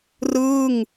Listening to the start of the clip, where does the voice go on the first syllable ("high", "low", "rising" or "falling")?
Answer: falling